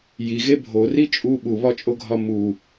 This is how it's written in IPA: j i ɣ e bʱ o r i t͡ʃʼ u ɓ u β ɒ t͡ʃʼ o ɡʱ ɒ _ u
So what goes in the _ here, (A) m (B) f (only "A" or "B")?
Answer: A